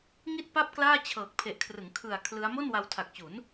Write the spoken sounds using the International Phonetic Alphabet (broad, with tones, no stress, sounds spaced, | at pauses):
ŋ i˥˩ t̚ p a˥˩ p̚ k l aː˥˩ t͡ɕʰ ɤː˨˩ k̚ pʰ e˨˩ ʔ kʰ r ɯ˩˦ ŋ kʰ ɯ˨˩ a̯ kʰ l ɯ˦˥ a̯ m o˥˩ n w a˧ w tʰ a˨˩ k̚ t͡ɕ u˩˦ n